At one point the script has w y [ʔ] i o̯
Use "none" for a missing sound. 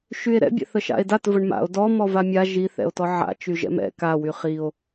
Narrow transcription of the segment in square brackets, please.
χ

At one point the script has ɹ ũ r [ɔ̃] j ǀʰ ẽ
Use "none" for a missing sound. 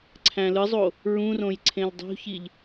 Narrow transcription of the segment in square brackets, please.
õ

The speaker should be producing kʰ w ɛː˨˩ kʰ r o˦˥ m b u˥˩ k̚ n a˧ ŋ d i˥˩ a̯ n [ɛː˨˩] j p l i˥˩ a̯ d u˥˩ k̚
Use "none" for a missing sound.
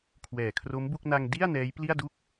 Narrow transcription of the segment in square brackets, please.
ɛː˦˥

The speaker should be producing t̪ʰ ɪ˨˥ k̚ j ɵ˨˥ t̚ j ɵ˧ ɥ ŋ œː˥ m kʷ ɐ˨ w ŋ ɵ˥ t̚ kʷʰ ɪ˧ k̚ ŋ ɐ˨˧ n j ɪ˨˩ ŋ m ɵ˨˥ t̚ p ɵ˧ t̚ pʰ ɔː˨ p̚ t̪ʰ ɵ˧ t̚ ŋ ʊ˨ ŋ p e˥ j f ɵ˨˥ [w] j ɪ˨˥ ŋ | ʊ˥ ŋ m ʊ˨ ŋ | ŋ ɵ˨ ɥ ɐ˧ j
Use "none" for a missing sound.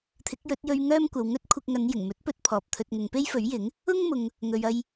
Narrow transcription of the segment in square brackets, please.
ɥ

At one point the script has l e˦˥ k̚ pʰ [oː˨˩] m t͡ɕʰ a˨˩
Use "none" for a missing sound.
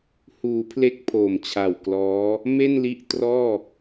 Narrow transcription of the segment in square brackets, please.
oː˨˩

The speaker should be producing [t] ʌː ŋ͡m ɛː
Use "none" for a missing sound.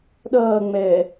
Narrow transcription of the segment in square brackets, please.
ɗ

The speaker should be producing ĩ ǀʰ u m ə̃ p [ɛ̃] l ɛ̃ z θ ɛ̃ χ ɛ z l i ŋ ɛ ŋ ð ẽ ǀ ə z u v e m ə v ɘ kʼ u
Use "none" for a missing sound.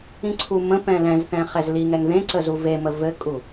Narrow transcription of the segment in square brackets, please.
ɛ̃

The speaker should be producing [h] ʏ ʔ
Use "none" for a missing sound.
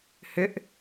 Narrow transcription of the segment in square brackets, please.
h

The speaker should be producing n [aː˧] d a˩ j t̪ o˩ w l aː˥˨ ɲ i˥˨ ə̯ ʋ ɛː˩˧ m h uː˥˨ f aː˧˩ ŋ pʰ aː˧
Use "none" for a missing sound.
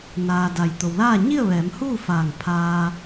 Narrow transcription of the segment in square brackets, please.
aː˩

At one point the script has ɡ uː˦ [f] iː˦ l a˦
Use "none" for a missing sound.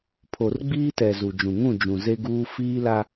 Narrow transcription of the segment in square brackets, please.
f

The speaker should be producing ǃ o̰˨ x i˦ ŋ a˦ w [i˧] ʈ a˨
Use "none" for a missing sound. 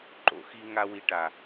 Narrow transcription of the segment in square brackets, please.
i˧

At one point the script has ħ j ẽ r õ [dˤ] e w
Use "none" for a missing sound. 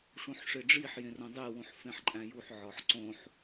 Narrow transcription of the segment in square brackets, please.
dˤ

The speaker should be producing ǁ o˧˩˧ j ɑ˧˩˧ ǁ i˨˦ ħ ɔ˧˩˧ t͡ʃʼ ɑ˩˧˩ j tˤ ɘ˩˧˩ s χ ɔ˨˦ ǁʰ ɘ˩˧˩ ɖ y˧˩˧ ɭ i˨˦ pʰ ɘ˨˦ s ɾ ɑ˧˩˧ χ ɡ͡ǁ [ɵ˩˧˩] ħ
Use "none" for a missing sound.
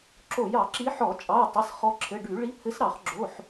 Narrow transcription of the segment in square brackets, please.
o˩˧˩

